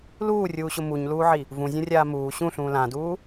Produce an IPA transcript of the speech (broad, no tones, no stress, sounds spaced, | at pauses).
l uː rʲ uː ɕ ʊ m u ɲ l uː ʕ i | v ũ zʲ ũ rʲ aː m uː ɕ ũ ɬ ũː l ã d uː